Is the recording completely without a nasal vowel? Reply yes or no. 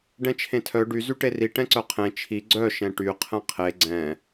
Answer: no